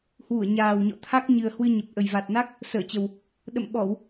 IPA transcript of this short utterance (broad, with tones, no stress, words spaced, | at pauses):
hwu˧˩ə̯ɲaː˨˩wɲɔ̰˧˨t̪ʰa˦˥k̚ ɲɨ˨˩ə̯hwɨ˧ ɲə˨˩p̚ ʔə˨˩jva˨˩t̚na˦˥k̚ | səː˧˩t͡ɕə˨˩w | ɗə̰˧˨m ɓɔ˧˩˨w